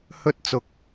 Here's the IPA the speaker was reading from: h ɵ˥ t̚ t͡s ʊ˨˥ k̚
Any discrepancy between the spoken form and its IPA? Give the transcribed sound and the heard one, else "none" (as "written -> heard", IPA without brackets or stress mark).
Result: none